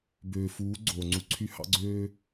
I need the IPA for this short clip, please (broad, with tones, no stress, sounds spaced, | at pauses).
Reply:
b øː˨ f uː˨˦ ɡ͡ǀ oː˨ ŋ͡ǀ u˧ ǀʰ y˦ h ɑ̰˦ ɡ͡ǀ øː˦